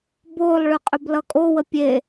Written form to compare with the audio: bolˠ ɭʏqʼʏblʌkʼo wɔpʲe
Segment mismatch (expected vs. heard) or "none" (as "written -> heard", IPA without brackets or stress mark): ɔ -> ə